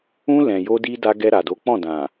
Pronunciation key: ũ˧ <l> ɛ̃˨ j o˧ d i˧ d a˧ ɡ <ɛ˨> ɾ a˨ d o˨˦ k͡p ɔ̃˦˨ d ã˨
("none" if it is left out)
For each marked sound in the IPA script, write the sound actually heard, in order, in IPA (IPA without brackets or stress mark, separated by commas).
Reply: l, ɛ˧